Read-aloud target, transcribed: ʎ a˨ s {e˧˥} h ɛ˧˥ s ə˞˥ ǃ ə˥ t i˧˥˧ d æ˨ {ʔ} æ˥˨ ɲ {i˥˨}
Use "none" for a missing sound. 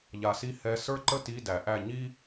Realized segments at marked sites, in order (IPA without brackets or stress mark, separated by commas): i˧˥, ʔ, i˥